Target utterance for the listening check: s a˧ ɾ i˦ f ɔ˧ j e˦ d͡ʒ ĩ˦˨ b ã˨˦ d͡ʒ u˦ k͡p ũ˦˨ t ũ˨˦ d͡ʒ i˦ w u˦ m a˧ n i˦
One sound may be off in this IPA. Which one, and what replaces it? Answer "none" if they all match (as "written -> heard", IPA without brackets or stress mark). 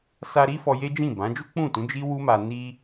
none